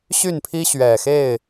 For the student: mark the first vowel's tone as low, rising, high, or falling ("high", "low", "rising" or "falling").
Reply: falling